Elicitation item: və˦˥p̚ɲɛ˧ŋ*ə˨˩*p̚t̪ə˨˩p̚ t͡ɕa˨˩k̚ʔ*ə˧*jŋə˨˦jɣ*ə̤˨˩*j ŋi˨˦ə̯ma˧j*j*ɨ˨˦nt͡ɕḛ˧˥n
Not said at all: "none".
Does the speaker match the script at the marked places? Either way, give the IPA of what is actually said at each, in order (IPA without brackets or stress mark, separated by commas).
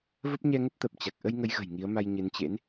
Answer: ə˦˥, ə˧, ə̤˨˩, ɲ